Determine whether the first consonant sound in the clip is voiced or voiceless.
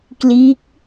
voiceless